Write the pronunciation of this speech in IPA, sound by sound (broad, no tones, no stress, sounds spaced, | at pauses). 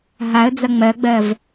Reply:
ɦ a ə̯ d͡z ɐ ŋ͡m ɜ ɡ͡b ɜ v